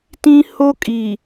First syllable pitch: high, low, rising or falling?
high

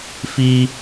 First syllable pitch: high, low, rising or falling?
high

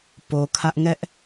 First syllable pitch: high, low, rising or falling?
low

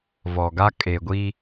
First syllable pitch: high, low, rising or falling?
low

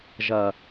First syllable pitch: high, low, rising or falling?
low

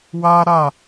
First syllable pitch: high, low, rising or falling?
high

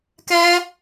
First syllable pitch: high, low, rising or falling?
high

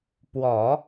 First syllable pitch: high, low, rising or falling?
low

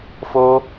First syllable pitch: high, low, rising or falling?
high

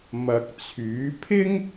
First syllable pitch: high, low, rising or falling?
low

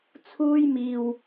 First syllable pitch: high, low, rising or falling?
high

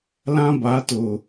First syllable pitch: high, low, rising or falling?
high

